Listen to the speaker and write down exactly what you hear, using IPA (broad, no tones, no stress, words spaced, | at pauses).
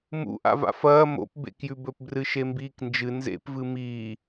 mṵ ʔa̰va̰fɐː mo̰p bḛkjʉbɵp brɨʃembiːknd͡ʒɨ nzḛpvɨ miː